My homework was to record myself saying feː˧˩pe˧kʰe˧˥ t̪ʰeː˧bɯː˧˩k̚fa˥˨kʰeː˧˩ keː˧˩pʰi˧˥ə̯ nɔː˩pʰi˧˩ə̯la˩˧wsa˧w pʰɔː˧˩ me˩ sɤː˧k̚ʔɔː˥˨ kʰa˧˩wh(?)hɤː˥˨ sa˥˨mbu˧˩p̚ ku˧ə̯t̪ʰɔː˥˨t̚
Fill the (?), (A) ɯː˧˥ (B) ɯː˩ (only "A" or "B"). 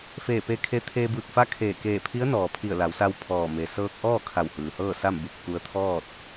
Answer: B